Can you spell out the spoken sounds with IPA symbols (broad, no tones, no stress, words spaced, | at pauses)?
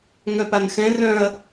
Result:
ŋœpanxɛ̃ rœ̃ɐ̯